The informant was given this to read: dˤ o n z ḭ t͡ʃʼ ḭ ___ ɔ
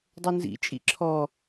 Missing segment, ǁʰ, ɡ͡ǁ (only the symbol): ǁʰ